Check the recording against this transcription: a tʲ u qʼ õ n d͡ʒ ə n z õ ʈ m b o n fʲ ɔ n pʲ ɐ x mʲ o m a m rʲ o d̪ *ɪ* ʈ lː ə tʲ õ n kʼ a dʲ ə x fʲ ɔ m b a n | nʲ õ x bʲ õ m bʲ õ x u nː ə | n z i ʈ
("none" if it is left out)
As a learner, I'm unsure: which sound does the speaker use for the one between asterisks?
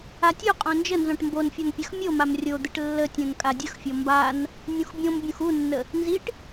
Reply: ɪ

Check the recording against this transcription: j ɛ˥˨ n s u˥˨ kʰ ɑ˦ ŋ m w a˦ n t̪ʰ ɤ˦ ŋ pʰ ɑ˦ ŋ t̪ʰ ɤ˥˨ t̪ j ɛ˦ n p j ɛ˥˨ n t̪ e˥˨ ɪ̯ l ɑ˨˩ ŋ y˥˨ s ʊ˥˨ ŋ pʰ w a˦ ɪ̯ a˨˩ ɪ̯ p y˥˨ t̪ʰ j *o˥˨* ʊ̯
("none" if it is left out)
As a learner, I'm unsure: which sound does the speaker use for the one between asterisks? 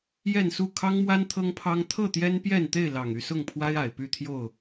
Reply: o˥˨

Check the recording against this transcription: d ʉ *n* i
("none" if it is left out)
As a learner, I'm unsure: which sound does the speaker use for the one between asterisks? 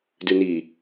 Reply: n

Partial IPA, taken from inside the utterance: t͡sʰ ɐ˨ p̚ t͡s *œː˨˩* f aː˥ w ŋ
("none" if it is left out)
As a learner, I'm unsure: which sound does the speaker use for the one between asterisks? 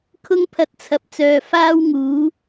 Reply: œː˨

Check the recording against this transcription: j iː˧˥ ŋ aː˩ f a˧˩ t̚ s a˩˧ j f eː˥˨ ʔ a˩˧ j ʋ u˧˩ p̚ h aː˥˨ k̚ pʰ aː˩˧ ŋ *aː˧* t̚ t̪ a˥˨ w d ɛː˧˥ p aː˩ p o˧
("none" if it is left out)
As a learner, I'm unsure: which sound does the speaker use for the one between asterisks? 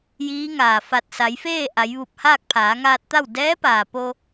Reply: aː˧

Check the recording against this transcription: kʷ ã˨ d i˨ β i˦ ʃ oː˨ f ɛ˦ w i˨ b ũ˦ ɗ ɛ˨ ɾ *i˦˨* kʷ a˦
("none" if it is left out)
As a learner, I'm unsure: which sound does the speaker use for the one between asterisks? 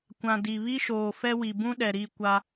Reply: i˦˨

